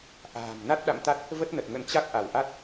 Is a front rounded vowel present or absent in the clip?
absent